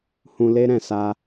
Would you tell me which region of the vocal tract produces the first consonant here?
throat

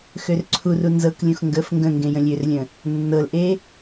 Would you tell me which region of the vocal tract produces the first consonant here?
velum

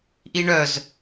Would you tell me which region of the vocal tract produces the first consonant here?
throat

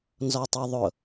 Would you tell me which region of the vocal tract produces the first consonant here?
tongue tip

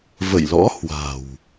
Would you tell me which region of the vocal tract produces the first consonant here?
lips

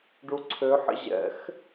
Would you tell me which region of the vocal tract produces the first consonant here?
retroflex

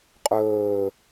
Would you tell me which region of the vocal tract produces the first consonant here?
uvula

